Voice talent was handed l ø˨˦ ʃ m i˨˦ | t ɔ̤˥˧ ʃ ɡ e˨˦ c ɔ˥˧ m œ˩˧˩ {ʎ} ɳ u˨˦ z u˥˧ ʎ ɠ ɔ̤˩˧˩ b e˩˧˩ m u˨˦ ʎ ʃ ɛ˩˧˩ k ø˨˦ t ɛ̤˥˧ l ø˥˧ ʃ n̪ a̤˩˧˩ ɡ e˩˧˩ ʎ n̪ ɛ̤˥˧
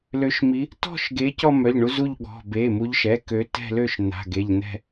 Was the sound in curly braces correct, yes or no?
yes